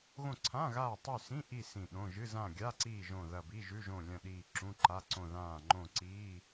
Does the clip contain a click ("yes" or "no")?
yes